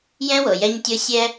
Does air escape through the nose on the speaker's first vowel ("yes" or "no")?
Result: yes